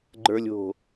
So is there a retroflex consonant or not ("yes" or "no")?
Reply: no